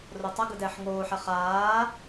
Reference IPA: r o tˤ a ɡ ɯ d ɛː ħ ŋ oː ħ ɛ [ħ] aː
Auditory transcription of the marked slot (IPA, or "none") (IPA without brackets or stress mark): χ